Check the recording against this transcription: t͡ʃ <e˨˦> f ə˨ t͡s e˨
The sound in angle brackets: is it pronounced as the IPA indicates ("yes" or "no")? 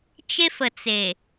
no